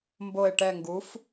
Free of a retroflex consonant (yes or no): no